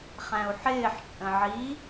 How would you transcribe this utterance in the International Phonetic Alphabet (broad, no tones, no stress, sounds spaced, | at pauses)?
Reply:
χ æ̃ u̯ ħ ɪː ħ t͡ʃʼ ə̃ ʕ i